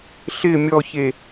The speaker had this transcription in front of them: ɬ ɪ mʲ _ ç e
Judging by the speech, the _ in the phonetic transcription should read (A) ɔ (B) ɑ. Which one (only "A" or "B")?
A